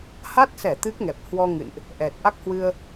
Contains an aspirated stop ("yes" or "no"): no